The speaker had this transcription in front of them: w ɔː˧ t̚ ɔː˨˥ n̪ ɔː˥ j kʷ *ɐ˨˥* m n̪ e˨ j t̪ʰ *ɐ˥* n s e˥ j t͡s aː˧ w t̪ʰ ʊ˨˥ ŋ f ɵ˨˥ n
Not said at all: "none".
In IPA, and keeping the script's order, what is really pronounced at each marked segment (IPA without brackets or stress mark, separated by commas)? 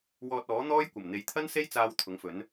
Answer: ɐ˨˩, ɐ˥